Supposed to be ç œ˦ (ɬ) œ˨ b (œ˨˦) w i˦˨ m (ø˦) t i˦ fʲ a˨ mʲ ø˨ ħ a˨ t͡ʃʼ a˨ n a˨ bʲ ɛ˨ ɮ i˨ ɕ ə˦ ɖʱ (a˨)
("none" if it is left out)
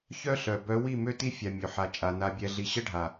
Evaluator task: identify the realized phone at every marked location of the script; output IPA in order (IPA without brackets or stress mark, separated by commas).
ɬ, œ˨˦, ø˦, a˨